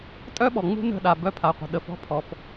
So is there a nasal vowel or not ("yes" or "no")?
no